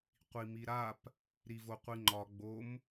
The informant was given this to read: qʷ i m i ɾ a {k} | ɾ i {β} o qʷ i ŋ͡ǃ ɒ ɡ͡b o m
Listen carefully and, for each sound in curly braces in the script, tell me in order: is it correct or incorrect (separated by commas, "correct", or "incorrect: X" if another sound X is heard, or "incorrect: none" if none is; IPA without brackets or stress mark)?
incorrect: p, incorrect: v